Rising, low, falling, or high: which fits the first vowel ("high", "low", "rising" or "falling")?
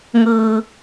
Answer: low